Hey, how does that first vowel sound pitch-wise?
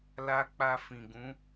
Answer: high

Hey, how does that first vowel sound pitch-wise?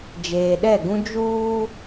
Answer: low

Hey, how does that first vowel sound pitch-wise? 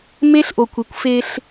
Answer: high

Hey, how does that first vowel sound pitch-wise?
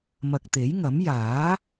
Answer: low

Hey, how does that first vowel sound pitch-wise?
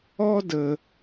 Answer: high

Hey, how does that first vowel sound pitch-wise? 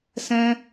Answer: high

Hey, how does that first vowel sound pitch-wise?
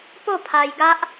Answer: falling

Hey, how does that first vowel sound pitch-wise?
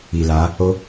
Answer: low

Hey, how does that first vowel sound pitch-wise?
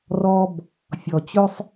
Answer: high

